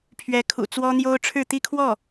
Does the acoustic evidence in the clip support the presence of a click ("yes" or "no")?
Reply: no